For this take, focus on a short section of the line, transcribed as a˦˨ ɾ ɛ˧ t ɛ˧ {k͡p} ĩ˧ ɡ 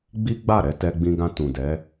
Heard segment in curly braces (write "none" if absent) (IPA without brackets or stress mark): ɡ͡b